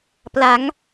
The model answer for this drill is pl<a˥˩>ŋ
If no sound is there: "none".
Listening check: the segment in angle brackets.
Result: a˩˦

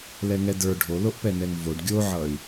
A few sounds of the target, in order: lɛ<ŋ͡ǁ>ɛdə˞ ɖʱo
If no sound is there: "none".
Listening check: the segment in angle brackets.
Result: ŋ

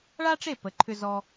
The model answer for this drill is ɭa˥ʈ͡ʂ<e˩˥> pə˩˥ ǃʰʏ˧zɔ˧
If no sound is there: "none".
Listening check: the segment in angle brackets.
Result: e˥˩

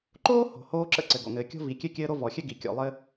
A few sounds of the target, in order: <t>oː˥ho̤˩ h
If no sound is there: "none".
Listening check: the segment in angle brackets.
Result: ǃ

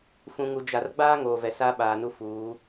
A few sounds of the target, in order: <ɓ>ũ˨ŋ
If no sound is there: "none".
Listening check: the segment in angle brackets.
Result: f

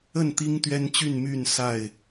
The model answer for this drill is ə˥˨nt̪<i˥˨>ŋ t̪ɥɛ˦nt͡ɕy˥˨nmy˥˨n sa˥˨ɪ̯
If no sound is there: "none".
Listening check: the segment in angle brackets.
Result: i˦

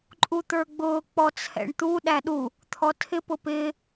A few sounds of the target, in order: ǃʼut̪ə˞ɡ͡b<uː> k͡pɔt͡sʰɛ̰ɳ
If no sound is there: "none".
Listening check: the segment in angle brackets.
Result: ʊː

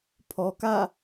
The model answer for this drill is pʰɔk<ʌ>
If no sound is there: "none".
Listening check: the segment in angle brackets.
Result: a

